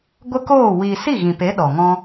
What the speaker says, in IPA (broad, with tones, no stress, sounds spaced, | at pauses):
ɡʷ ə˦ k oː˦˨ w i˧ s i˦˨ ɣ ĩ˨ p e˨˦ ɗ ɔ˨ ŋ ɔ̃˦